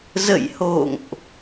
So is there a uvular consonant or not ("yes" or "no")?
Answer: no